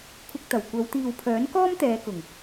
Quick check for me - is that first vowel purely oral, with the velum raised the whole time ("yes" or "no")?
yes